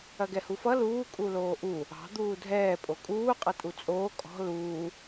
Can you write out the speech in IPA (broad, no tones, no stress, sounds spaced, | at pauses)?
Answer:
ɐ ɡ ɛ h u f ʌ l uː kʼ u l oː ʔ u | ɑ̤ d̪ uː dʱ ɛː pʼ o kʼ uː qʼ ʌ tʼ u t͡sʼ oː kʼ ɔ̤ l uː